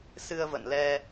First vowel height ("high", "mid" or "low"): high